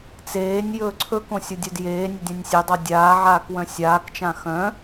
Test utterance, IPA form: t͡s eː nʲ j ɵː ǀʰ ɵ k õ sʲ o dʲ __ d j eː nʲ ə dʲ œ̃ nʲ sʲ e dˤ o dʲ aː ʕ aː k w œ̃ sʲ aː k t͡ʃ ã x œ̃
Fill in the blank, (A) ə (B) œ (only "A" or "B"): B